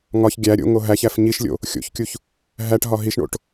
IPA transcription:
ŋɒç ɡʲæ ɾʲo̰ŋo ɦæçæf ɲiʃlʲo̰ | xʲo̰çkʲuç | ɦæʈɦɒ ɦiʃɳo̰ʈ

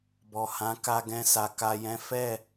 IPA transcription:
bɔ˨hã˨˦ka˧ ɡɛ̃˧sa˨ ka˨jɛ̃˨˦ fɛ˦˨

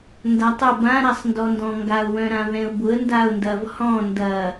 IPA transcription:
ndatˤʊ bã ɾasˤndɔndɔ̃ŋɡaʊ̯ wœ̃ɾãvɛ̃ʊ̯bʊə̯ ndaʊ̯ndɐv hɔ̃ ndɐ

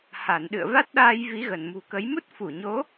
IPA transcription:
ha˧˩nɗɨ̰˧˨ə̯ va˦˥t̚ɗaː˧j vi˨˦ɣə˧˩nmṳ˨˩kə˨˦j mu˦˥t̚fu˧˩ɲo˨˦

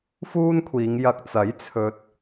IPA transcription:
fuː˥nkʷʰiː˨˧ŋjɐ˧k̚ t͡sɐ˨˥j t͡sʰɵ˧t̚

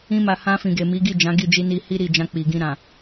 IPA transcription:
ĩ˧ma˨ hã˧fĩ˨ɡe˨ mi˨˦ɡi˦˨ d͡ʒã˨˦ɡi˦˨d͡ʒi˧ni˧ hi˦ɾi˦˨d͡ʒã˧ k͡pi˨ɡĩ˧ɾã˨

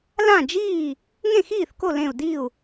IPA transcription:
lã˥˩d͡ʒiː˥˩ | ŋẽ˥˩xiː˥˩θko˥˩lẽ˧˩u̯ di˥˩u̯

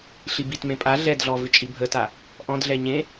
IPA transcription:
ɬibitmẽ pʼa ɮɛdɮɔ vɪt͡ʃʼibʱəta | ʔɔ̃dɮɛ ɲẽ

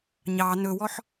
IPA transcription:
ɲɑ nɵwɔħ

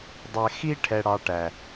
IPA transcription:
dˤɛ˧ xi˥ ʈʰɛ˧ɽɑ˧ʈæ˩

